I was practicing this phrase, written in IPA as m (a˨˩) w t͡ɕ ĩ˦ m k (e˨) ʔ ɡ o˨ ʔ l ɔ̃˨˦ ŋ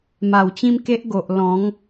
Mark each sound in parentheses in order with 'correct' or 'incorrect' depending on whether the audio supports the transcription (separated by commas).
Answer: correct, incorrect